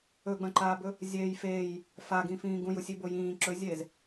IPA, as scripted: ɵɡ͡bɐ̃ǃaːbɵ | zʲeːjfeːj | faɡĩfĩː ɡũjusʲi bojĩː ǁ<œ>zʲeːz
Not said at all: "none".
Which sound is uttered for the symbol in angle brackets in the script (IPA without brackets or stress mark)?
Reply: ɵ